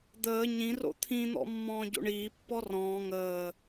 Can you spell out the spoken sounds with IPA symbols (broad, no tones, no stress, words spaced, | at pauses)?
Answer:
d̪əː ɲĩro̰ t̪ʰĩn̪ɔ̰ mːɔ̃ːɟo̰ɳiːpːɔ rɔ̃ː ŋəː